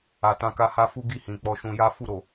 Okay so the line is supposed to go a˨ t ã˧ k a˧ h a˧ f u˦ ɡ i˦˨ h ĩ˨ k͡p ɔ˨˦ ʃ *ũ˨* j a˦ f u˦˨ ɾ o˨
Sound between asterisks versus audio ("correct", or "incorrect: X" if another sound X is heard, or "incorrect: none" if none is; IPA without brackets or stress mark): incorrect: ũ˧